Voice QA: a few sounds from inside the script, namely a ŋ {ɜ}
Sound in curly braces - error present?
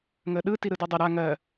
no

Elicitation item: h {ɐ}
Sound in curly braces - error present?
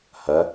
no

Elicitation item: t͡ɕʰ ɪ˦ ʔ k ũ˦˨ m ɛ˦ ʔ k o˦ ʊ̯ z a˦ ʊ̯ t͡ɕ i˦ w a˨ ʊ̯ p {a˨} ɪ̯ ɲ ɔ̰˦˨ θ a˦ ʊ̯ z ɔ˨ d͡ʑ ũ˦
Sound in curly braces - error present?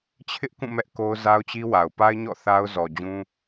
yes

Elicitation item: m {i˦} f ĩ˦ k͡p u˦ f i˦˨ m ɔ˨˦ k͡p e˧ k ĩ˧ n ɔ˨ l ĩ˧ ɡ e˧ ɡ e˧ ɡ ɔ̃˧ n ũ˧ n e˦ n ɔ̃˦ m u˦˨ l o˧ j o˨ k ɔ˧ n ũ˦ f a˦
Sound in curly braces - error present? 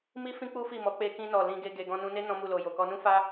no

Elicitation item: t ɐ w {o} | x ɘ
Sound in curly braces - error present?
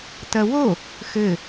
no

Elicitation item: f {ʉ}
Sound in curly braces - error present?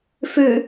no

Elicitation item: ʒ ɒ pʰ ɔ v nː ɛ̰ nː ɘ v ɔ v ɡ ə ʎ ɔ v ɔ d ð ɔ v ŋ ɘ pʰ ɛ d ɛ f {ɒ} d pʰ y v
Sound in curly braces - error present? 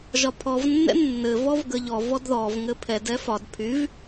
no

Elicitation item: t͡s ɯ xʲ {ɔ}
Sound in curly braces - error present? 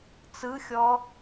no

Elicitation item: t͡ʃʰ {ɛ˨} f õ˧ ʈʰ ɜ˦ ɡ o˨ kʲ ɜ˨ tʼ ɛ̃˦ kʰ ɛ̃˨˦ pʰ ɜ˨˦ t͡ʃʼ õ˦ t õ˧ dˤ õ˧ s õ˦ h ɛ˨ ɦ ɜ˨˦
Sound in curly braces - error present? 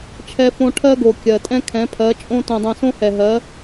yes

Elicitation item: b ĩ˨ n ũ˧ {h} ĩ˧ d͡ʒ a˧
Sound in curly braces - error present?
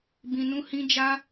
no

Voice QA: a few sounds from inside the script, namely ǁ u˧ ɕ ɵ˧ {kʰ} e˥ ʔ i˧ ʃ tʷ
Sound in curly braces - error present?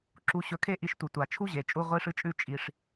no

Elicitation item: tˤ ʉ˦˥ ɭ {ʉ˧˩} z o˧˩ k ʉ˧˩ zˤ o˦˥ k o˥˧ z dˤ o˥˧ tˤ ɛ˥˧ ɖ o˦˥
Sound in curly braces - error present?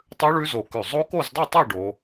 yes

